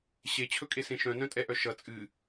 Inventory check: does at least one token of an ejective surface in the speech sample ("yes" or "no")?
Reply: yes